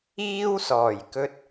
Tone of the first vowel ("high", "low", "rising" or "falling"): high